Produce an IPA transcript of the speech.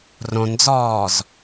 r õ n d͡z ɔː z

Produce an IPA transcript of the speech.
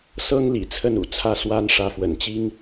s ɤ˦ ŋ l ḭ˨˩ t͡sʰ ə˥˨ n ṵ˨˩ t͡sʰ ä˥˨ s w a˦ n ʂ ä˨˦ f w ə̰˨˩ n t͡ɕ i˦ ŋ

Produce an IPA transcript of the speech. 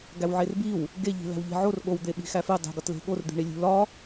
ɡ æ w ʕ e r b i w | ɡ e ʎ i̤ l æ̤ w ʎ e̤ ʕ o r ɠ o w d̪ e ɓ i̤ x æ f e dˤ i̤ ɡ ɒ t l e̤ ɠ o r d̪ i̤ ɳ i lʲ ṳ l ɒ

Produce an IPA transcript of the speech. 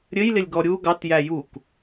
ɾʲ ɘ j l ɪ lʲ ɡ ɔ ɾʲ u ɡ ɑ t j æ j u k

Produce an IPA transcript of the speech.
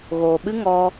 ɣ oː˨ ɓ ɨ˦ ŋ ɔ˦

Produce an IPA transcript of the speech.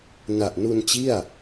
n a˨˩ ʔ n u˧ n t͡ɕ i˥˩ a̯

